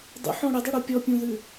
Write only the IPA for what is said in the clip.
dˤ ṵ ħ ɔ̃ ɽ ə dˤ ʉ ɽ u pʲ ɔ pʲ ũ ð ʉ

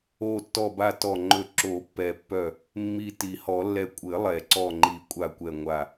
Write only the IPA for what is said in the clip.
o˧˩ tː ɔ˧˩ b a˧˩ t ɔ˧˩ ŋ͡ǃ ɵ˧˩ ǁ o˨˩˦ pː ɛ˨˩˦ pː œ˧˩ | mː i˧˩ t i˨˩˦ h ɔ˨˩˦ lː ɛ˧˩ kʷʼ ɘ˨˩˦ lˠ ɛ˨˩˦ ǀ ɔ˧˩ ŋ͡ǃ i˨˩˦ kʷʼ a˧˩ kʷ ɛ˧˩ ŋʷ a˧˩

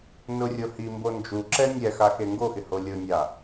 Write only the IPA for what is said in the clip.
n ʊ rʲ o h i m b o n d͡ʒ u ǁ ɛ nʲ ɛ x a x e ŋ ɡ o x ɪ h o lʲ ʊ nʲ a

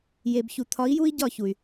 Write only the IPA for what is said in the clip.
j e˨ b ç u˨ t̪ʰ ɒ˨˦ i̯ j u˦ i̯ ɟ ɒ˦˨ ç u˨ y̯

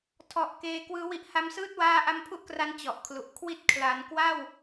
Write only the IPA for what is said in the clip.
tʰ ɔ˨˩ ʔ k eː˧ k w ɯː˦˥ w i˦˥ ʔ h a˦˥ m s ɯː˥˩ t̚ w aː˥˩ ʔ a˥˩ m pʰ u˥˩ ʔ k r a˦˥ n t͡ɕ ɔ˨˩ ʔ kʰ l u˨˩ ʔ kʰ w i˦˥ t̚ kʰ l a˩˦ n k w a˥˩ w

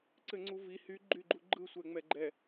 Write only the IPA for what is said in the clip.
ǀ ɘ ŋ͡ǀ u v i h y ɡ͡ǃ y ɡ͡ǃ u ɡ͡ǃ ɯ sʷ ɛ ŋ͡m ɛ ɡ͡ǃ ɛ

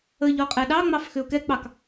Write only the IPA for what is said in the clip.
ə ʎ ɔ qʼ ɛ ɗ ɑ ŋ͡m ɑ f x ʏ ʊ̯ k ɛ k͡p ɑ k

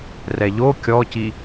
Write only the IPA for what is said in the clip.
r ɛ ʎ o kʲ ɔ c i

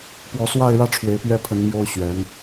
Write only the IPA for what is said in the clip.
p w ɔ˧˥ s w a˥˧ ɪ̯ ɻ ä˥˩ ʈ͡ʂʰ w e˧˥ ɪ̯ p ɥ ɛ˥˩ pʰ ə˧˥ n m j o˥ ʊ̯ ɕ ɥ ɛ˧˥ n

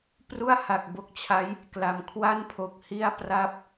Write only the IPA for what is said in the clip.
p r u˥˩ a̯ h a˨˩ k̚ b o˦˥ k̚ t͡ɕʰ a˦˥ j | k l a˩˦ m kʰ w a˥˩ n pʰ o˨˩ k̚ h i˥˩ a̯ p r a˥˩ p̚

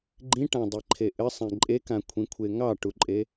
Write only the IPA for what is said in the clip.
ɡ͡ǃ ĩ ʈ ã dˤ i ǃʰ e ʔ ɘ sˤ ẽ ǃʼ e k ã kʷʰ ĩ kʷʰ e ŋ ɑ ʈ u ǃʼ e

